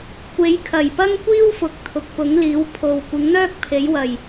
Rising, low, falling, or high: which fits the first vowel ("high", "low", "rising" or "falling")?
rising